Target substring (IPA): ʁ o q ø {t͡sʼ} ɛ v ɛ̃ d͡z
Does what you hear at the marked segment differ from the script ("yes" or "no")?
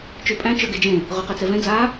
yes